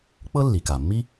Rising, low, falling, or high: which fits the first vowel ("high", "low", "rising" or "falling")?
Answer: high